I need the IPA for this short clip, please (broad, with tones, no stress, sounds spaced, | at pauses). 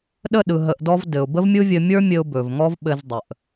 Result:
ɗ ə˦˨ ɗ ɯ˨ ɦ ə˧ ʔ d ɔ˦ v d ɘ˨ ʊ̯ b ə˦ v mʲ ɯ˦ vʲ ɘ˧ mʲ ə˞˦ mʲ ɘ˦ ʊ̯ b ɵ˨ v ŋ ɔ˦ v ɓ ɘ˧ z dˤ ə˨ ʔ